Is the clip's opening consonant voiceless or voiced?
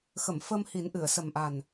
voiceless